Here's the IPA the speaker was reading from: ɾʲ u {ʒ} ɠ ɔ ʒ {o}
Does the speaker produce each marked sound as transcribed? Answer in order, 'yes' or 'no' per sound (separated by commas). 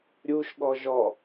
no, no